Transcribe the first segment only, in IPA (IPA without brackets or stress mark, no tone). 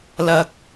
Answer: l